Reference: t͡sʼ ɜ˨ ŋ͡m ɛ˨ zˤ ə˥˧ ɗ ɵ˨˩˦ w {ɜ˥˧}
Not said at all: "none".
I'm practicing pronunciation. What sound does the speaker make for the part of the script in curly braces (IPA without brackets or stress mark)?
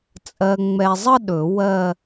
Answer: ɜ˥˧